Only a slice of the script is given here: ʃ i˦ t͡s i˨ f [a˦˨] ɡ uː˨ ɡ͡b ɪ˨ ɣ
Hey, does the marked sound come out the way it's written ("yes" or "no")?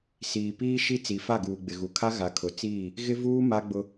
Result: yes